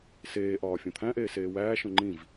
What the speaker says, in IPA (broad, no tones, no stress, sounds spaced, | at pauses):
s eː ʔ ɒː fʲ õ t̪ʰ æ̃ ʔ eː s eː w æː ʃ õ ŋ͡ǃ ĩ v